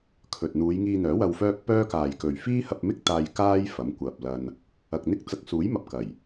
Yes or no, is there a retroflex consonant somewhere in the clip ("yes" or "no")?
no